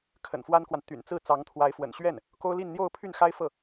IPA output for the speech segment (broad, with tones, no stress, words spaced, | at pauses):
kʰə̰˨˩nfwa˥nkwa˨n t̪y̰˨˩nt͡sɹ̩˥˩ t͡sɑ˧˥ŋt̪ʰwa˧˥ɪ̯fwə̰˨˩n ɕɥɛ˥˩n | ko˥ʊ̯li˥˧nn̪jo˥˧ʊ̯ pʰy˥˩nxa˥ɪ̯ fɤ˥˩